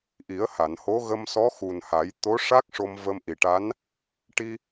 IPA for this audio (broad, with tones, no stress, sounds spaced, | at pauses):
ʔ i˨˩˦ ə̯ h a˨˩˨ n h o˧˥ ɣ ə˧ m s ɔ˧˥ x u˨˩ n h a˨˩˦ j t̪ o˧˥ ʂ a˦˥ k̚ ʂ o˧ m v ə˧ m ʔ i˨˩ ʈ a˧˥ n | ʈ i˧